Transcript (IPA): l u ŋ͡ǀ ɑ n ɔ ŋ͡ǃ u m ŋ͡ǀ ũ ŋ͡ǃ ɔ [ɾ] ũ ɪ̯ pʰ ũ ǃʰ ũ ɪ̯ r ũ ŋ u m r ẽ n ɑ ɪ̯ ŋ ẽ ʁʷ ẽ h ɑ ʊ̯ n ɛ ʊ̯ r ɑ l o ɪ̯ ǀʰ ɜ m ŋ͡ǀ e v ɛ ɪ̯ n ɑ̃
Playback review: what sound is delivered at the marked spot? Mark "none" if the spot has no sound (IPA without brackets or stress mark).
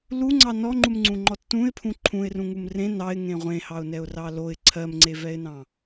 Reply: tː